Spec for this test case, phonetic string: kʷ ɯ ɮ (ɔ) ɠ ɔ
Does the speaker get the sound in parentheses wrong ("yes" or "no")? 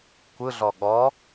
no